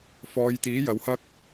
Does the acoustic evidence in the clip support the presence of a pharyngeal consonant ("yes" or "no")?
no